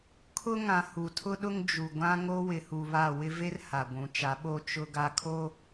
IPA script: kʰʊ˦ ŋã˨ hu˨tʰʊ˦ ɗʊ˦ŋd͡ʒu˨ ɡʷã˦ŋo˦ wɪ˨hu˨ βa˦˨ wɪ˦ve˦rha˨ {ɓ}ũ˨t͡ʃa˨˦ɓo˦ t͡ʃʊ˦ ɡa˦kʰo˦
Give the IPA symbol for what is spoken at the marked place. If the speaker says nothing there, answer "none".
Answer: ɡʷ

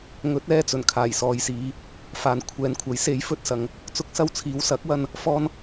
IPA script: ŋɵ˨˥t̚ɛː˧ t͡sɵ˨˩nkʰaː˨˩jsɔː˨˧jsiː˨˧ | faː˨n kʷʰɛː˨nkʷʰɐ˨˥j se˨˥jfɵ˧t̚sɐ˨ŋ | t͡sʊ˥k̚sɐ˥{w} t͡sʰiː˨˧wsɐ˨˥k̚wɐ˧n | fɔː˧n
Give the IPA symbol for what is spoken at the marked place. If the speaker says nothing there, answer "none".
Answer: w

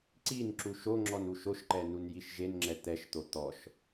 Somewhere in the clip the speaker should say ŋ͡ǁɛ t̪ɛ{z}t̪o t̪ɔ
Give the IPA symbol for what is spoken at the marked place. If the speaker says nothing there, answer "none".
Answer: ʃ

